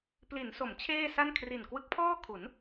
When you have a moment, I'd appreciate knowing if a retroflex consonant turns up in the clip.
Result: no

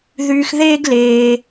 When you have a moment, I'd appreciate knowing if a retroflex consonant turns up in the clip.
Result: no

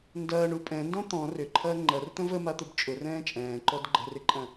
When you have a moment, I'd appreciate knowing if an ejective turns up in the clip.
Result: yes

